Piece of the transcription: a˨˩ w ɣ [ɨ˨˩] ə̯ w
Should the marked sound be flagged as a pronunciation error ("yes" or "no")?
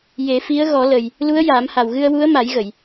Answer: yes